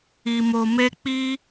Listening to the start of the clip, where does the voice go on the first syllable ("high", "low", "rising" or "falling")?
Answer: low